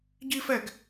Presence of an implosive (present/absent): absent